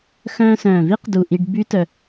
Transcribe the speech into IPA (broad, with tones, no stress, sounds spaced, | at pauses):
x œ̃ː˧ s œ̃ː˨˩ v i˦˥ q d u˨˩ ʔ i˧ ɖ b y˦˥ t œ˧